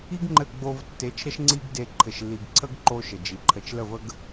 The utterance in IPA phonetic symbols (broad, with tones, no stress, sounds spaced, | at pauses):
i˦ ɡ ŋ͡ǃ ɘ˦˨ ɡ͡b o˧ v tː e˨˦ t͡ʃ ɾ ə˦ ʃ ŋ͡ǀ i˦ ɡ d e˧ ǃʰ ɘ˨ ʃ lː i˨ ɡ ǀʰ ə˦ ɡ ǃ o˦ ʃ ə˨ d͡ʒ i˨ ǃʰ ə˧ t͡ʃ l ə˦˨ v ə˦ ɡ